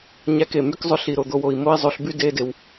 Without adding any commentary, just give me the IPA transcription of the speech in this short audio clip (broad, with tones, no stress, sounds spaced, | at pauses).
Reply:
ɲ æ˦ k e˨ m y˦ k zˤ ø˧ ɬ i˨ ɾ o˨ d̪ o˧ w o˨ i̯ m o˦ i̯ zˤ o˧ ɬ b y˦ d e˧ d e˨ w